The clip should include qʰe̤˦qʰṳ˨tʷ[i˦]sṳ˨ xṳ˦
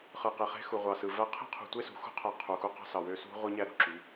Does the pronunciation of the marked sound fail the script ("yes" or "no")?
yes